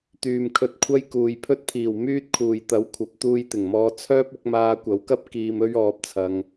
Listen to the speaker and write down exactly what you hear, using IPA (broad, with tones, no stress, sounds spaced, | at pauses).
t̪ yː˨ m kʰ ɵ˧ t̚ kʷʰ ɐ˥ j k uː˨ j pʰ ɵ˥ t̚ pʰ iː˨˩ w m yː˥ t̚ kʰ uː˨ j t̪ ɐ˨˥ w kʷʰ ɐ˨˥ p̚ t̪ uː˧ j t̪ ɪ˨˩ ŋ m ɔː˧ t͡sʰ œː˥ p̚ ʊ˨˥ k̚ m aː˧ kʷ ɐ˨˥ w k ɐ˥ p̚ k iː˧ m ɵ˥ ɥ ɔː˧ p̚ t͡sʰ ɐ˧ ŋ